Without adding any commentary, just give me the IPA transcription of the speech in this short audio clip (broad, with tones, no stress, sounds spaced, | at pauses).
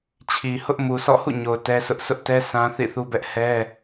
t͡ɕʰ i˨ h ʊ˦ ʔ m u˨ s ɔ̰˦˨ h ṵ˦˨ ɲ o˨ ʊ̯ t ɛ˦ s ʊ˦ ʔ sʰ ʊ˦ ʔ t ɛ˦ sʰ ã˦ θ ḭ˦˨ θ u˦ b ɛ˦ ʔ h ɛ˦